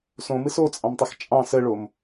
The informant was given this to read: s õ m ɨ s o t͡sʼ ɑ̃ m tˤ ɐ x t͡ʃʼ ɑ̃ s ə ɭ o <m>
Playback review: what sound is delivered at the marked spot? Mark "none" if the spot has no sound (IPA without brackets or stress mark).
m